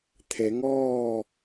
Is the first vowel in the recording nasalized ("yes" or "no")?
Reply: no